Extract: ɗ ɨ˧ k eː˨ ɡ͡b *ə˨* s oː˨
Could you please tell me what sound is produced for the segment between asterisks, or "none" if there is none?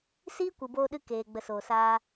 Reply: ə˨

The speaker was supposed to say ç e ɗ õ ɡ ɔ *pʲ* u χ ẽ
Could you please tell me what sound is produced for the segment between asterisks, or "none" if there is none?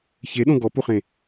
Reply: p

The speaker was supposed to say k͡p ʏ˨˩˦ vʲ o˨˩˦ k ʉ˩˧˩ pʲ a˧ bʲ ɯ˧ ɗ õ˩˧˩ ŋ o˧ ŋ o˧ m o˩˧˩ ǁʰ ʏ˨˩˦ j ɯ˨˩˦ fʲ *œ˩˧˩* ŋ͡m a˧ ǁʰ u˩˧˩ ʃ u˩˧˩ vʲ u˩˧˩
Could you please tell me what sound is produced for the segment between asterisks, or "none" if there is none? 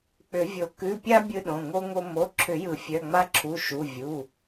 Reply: œ˩˧˩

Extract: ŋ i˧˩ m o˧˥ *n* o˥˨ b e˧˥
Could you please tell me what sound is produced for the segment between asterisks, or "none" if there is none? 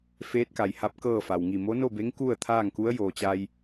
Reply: n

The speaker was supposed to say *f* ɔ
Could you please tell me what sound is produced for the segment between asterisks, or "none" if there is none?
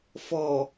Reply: f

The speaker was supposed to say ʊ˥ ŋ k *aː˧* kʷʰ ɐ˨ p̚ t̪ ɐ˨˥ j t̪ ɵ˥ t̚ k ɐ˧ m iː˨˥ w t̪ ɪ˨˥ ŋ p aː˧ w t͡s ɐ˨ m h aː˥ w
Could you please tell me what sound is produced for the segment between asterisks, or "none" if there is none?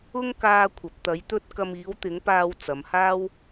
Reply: aː˧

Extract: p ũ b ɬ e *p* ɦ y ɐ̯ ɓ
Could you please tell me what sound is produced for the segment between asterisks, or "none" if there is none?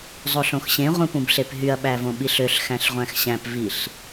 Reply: p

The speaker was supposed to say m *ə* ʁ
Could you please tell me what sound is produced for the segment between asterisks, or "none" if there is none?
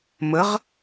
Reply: ə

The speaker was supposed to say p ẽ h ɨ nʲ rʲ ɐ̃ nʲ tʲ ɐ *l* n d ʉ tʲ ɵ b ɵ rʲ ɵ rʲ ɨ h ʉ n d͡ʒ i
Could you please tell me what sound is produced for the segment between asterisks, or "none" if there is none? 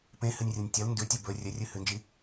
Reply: l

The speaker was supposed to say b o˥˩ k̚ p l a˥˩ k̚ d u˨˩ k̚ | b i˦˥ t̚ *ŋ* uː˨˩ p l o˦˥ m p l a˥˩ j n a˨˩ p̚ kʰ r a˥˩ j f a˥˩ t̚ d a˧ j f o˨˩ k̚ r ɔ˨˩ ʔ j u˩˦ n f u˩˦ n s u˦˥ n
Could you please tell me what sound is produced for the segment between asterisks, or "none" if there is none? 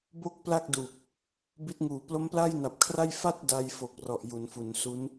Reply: ŋ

